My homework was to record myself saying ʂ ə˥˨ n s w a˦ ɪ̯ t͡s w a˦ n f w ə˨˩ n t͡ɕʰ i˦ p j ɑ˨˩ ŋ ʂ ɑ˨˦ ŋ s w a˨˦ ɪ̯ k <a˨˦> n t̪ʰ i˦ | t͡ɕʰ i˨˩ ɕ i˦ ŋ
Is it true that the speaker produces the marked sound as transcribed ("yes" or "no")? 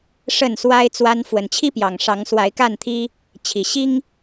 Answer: no